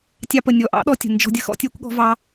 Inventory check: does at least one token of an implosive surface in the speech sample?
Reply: yes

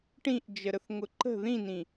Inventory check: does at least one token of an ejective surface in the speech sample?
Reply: no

